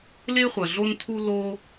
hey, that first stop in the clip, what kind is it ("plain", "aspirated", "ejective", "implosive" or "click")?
aspirated